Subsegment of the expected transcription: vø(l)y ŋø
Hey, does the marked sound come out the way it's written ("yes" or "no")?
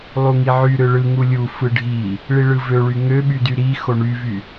no